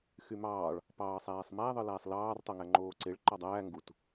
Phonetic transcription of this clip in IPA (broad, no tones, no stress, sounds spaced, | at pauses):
x y m ɑː ɭ | p ɑː sˤ æː sˤ m æ ðˤ ɯ l æː sˤ l ɑː r tˤ o ŋ æ ŋ͡ǃ oː ǀ e ɭ ǃ ɑ dˤ æː ŋ ɡ u t